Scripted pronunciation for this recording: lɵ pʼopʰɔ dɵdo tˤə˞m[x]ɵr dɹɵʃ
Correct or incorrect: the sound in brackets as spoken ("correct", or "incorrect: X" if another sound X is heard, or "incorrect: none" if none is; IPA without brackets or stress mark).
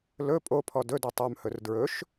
incorrect: h